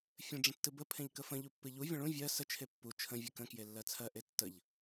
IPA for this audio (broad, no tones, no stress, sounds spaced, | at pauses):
fʲ ə̃ ɖ͡ʐ ə̃ tː ɨ b ə pʰ ẽ ʎ k ə f ə̃ ʎ u pː ɨ ʎ u vʲ ə̃ ɭ ũ vʲ ɜ s ə t͡ʃʰ e pː u t͡ʃʰ ə̃ vʲ ɨ k ə̃ k j e lː ɜ t͡sʰ ɜ ʔ e tː ə ʎ